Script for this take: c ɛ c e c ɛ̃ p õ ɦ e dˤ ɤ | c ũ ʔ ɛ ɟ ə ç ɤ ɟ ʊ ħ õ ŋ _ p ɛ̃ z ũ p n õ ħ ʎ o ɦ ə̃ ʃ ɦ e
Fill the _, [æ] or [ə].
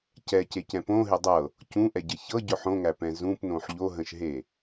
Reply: æ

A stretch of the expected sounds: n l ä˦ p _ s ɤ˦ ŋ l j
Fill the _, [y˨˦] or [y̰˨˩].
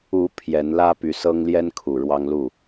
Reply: y˨˦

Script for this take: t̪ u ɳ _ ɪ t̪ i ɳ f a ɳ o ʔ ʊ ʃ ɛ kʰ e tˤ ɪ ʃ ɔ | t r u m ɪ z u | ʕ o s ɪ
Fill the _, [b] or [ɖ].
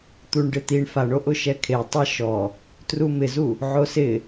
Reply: ɖ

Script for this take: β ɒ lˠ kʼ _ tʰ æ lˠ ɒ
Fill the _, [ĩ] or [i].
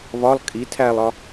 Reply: i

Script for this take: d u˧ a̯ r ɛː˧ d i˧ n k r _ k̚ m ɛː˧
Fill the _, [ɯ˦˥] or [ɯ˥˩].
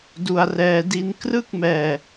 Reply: ɯ˥˩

